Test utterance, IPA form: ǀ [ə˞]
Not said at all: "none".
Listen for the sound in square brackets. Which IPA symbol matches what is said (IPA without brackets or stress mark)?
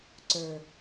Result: ə˞